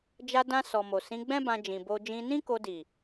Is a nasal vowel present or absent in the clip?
present